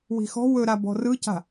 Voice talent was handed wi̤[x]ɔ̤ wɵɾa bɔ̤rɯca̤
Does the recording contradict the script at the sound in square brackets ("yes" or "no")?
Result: no